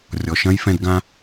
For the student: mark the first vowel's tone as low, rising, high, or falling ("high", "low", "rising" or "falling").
low